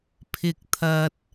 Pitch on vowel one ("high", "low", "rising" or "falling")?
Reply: high